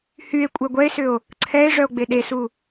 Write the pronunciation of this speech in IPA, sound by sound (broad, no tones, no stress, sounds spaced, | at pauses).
h y e̯ kʷʼ ɛ ɡʷ ɛ e̯ s ʏ o̯ | ǀʰ ɛ e̯ ʐ œ o̯ ɡ͡b e ɗ e s u